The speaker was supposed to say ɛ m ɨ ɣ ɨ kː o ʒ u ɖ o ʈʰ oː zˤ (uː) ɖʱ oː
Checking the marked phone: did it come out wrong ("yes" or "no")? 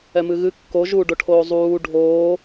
no